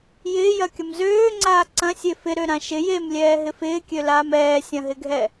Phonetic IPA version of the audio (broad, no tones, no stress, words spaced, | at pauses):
jɪːjɐkʲɐm zøːŋ͡ǀaː ǀɐ̃sʲe fɪɾøɾã ʃɪ jemlʲɛːɦɪ fɪːkʲølaːm ɛːsʲɐ̃ɦɪɡʱɛ